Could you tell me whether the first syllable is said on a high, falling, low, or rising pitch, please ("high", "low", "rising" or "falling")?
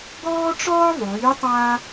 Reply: high